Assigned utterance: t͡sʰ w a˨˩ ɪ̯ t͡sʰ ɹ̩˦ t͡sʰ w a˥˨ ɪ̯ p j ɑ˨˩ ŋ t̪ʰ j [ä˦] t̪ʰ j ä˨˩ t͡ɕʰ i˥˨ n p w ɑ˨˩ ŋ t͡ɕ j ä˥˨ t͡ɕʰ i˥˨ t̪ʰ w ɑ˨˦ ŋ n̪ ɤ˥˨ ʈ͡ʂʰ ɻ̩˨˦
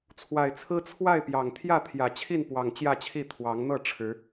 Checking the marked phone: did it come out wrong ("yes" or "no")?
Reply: yes